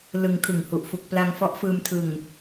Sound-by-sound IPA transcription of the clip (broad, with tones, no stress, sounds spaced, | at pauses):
l ɯ˧ ŋ kʰ ɯ˨˩ ŋ h u˨˩ ʔ f u˨˩ k̚ p l a˧ ŋ f ɔ˦˥ ʔ f ɯː˧ m tʰ ɯ˨˩ ŋ